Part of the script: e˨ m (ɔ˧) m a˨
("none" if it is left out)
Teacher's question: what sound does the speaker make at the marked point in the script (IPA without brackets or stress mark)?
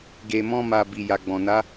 ɔ̃˧